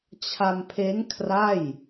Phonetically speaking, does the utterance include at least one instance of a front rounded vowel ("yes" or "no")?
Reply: no